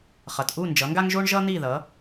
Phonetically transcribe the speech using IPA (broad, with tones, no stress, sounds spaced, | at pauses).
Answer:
χ ʌ˩ t ʔ u˥˩ n d͡ʒ ʌ˩˥ ŋ ɡ a˥ ŋ ʒ o˥ ɳ ʒ ʌ˥ n̪ i˥˩ ð ʌ˩˥